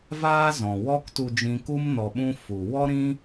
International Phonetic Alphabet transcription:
v aː˦ z ɔ̃˨ w ɔ˦ k t u˧ d͡ʒ ĩ˧ k u˦ m n ɔ˧ ɓ ũ˦ f u˨ w ɔ˦ ɾ ĩ˦

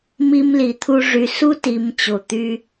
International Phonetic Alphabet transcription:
m i˧ m l i˨ t̪ʰ u˧ ʐ y˨ s u˦ t i˨ m t͡ɕ o˨ t̪ y˦

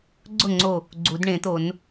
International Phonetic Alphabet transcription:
ɡ͡ǀ ʊ˥˩ ŋ͡ǀ o˧˩ | ɡ͡ǀ u˨˩˦ d ɳ ẽ˨˩˦ t̪ o˨˩˦ n

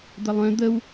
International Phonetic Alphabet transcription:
d̪ ə lˠ œ̃ d̪ ə w

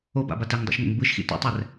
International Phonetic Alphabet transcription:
o b a̰ b a t ɛ ŋ dˤ ṵ ʃ ŋ ɛ̰ ŋ b ɯ ʃ x ḭ t ṵ tˤ ɛ r

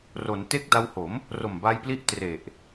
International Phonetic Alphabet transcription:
r o˩˦ n t e˦˥ k̚ d a˧ w h o˩˦ m | r o˨˩ m b a˧ j p l i˦˥ ʔ t r e˨˩ ʔ

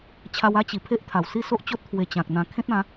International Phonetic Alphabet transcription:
t͡ɕʰ a˧ w a˦ t͡ɕ i˨˩ pʰ e˦ ʔ t̪ʰ a˨˩ w s i˥˧ s o˦ ʔ t͡ɕ o˦ t̚ t̪ʰ w e˧ t͡ɕ ã˨ k̚ n̪ ã˧ kʰ ẽ˦ t̚ ã˨˦

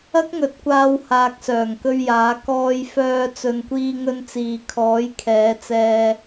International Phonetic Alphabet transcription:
ɐ˥ k̚ ŋ ɵ˨˥ t̚ kʷ aː˧ w h aː˨ k̚ s œː˨˩ ŋ k ɵ˧ ɥ j aː˨˥ k ɔː˧ j f œː˧ t͡s ɵ˨ n kʷ iː˧ ŋ ɵ˧ n t͡s iː˨ kʰ ɔː˨˥ j kʰ ɛː˨˧ t͡s ɛː˧

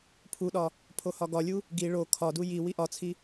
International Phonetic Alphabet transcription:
pʰ u ɗ ɒ | pʰ o h ɒ ɡ ɒ lʲ u | ɡ i ɭ o kʰ ɒ d u j i w i ʔ ɒ t͡sʰ i

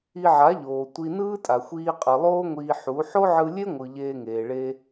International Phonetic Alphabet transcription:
i˧ ʕ a˨˦ ʎ oː˨ tʷ i˧ n ɯː˦ tʼ a˨ xʷ iː˧ qʼ ɯ˨ lˠ oː˦ ŋʷ iː˧ ħ u˨˦ ħ o˦ ʕ ɯ˧ lʲ e˦ ŋʷ ɯ˨ ʎ eː˧ ŋ eː˨ ɭ e˧

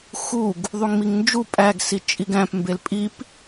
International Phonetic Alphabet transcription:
x u ɡ | ðˤ u ŋ m i ŋ n d͡ʒ u pʼ æ ɡ s i t͡ʃʼ i ɡ æ̃ p m b e l pʼ i p

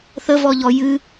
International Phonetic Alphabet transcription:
θ ə v ɔ ʎ ɔ j ɨ

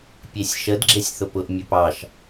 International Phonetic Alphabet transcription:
pʲ e sʲ ʃ ə d ɡ͡ǁ e sʲ θ ʊ p ʊ ʔ mʲ ɵ p ɑ ʃ

